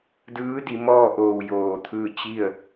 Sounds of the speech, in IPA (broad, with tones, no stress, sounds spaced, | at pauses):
d ɯː˧˥ d i˩˧ m ɔː˥˨ ʔ oː˧˩ w j oː˧˩ t̪ʰ ɯː˥˨ t͡ɕ i˥˨ ə̯